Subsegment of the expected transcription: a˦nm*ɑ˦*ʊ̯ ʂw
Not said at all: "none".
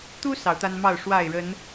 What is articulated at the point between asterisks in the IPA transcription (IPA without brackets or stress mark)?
ɑ˥˨